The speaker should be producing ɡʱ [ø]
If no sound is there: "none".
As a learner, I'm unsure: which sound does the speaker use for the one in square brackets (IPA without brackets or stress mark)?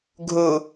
u